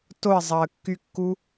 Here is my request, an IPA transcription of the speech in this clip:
t o ə̯ zˤ ɑ ə̯ kː y kː u

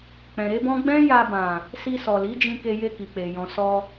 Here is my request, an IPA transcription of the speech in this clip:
k͡p ɛ̃˨ ɾ e˨˦ b ɔ̃˦ ɡ͡b ɛ̃˦ j a˧ b ã˨ | s i˧ s ɔ˨ l i˨˦ d͡ʒ ĩ˧ k e˧ j e˧ k i˨ k͡p e˨ j ɔ̃˨ s ɔ˧

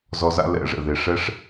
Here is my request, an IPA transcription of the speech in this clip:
z ɔ˧ z a̰˦ l ɛ̰˦˨ ʐ ɛ̰˨ ð e˨ ʂ ɛ˦ ʂ

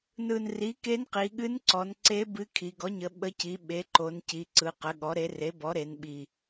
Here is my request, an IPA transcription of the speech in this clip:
n ɯ˨˩ n r i˩˥ k e˧˥ n q i˩˧ ɠ ɨ˧˥ n ǀ ɔ˩˧ n ǀ e˧˥ b ɨ˧˥ kʰ i˩˧ ɡ ɔ˩˥ ɲ ə˩˧ ɓ ə˧˥ c i˩˥ ɓ e˩˥ ǃ o˩˧ n c i˩˧ ǀ ɯ˩˧ q ə˩˥ ɠ ɔ˩˥ ɾ e˩˥ r e˩˥ b ɔ˩˥ ɾ e˩˧ n ɓ i˨˩

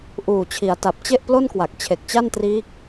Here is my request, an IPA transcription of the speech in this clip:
ʔ uː˨˩ t͡ɕʰ i˩˦ a̯ t a˨˩ p̚ t͡ɕ e˥˩ ʔ p l o˥˩ n k w a˨˩ k̚ t͡ɕʰ e˨˩ k̚ t͡ɕ a˥˩ n t r iː˦˥ k̚

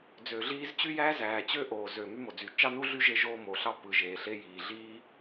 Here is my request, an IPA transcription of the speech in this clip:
d͡z øː˩ ɮ iː˥ z t͡ɕ y˥ j æː˥ z æː˩ t͡ɕ ø˥ ʔ oː˩ z ø˩ m y˥ m o˩ d͡z y˩ t͡ʃ ɑ˥ n u˥ ɮ y˥ ʒ e˥ ʒ oː˥ m oː˩ ɬ ɑ˥ p ɯ˩ ʒ eː˩ ɬ e˥ j iː˩ ɮ iː˥

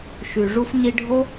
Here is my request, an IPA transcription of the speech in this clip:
ʃ y˨ ʐ u˧ f ɲ i˧ ɖʱ o˦

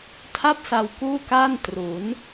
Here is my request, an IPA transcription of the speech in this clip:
tʰ a˥˩ p̚ s a˧ w k uː˥˩ k aː˥˩ n t r u˩˦ n

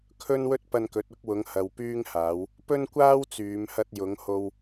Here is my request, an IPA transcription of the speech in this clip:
kʰ ɵ˥ n w ɵ˥ t̚ p ɐ˧ n k ɵ˨˥ t̚ ʊ˨˥ k̚ w ʊ˨˧ ŋ h ɐ˨ w p yː˧ ŋ h aː˨˧ w | p ɵ˥ n kʷ aː˥ w t͡s yː˨˧ m h ɐ˧ t̚ j ʊ˨˧ ŋ h o˧ w

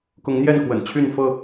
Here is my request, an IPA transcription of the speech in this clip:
k ʊ˨˦ ŋ n̪ j ɛ˥˨ n k w ə̰˨˩ n t͡ɕʰ y˥˨ n f ɤ˥˨

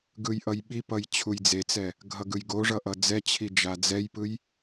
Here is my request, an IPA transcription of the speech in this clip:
ɡ ɯ j ʔ ʌ j ɓ i p ʌ j t͡ɕʰ u j d͡z e t͡s ɛ | ɡʱ ʌ ɡ ɯ j ɡ o ʐ ʌ ʔ ʌ d͡z ɛ t͡ɕʰ i d͡ʒ a d͡z ɛ j p ɯ j

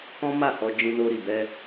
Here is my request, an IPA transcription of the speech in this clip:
k ɔ̃˦ m a˦˨ h ɔ˧ d͡ʒ ĩ˧ n o˧ ɾ i˨ b ɛ˧

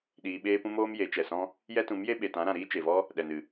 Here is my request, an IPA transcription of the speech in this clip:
ɗ iː˧ ɓ eː˦ p ũ˦ m oː˦ m j e˨˦ t͡ʃ ɛ˨ s ɔ̃˦ | j ɛ˦ t ũ˨˦ m j e˦ ɓ e˨ t ã˨˦ ɾ ã˨ ɾ iː˦ t͡ʃ e˨ v ɔ˦ | ɗ ɛ˨ n ɨ˨

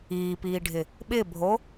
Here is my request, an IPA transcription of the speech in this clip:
iː p iː ɖʱ ɪ | ɓ ɪ bʱ o

